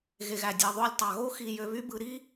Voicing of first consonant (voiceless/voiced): voiced